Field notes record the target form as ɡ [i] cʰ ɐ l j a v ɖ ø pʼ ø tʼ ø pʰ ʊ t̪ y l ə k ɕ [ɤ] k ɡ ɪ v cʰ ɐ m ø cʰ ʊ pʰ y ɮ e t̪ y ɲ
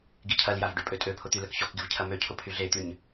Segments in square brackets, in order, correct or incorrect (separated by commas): correct, incorrect